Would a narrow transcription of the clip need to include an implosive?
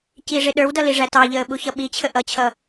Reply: yes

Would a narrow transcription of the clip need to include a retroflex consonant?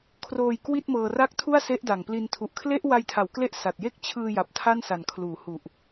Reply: no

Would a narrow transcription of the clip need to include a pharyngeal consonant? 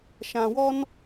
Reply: no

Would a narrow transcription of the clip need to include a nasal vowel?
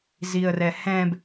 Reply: yes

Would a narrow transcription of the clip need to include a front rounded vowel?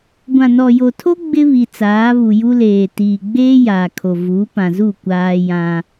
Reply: no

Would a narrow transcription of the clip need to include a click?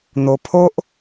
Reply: no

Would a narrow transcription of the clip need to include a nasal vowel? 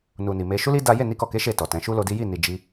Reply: yes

